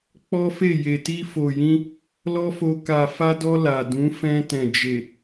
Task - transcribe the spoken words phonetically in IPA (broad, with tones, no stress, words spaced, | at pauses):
k͡pɔ˦fe˦˨ je˨ti˧fo˨jĩ˧ | lɔ˦fo˧ ka˨fa˧dɔ˧ la˨dũ˨˦ fɛ̃˧tɛ̃˨d͡ʒe˨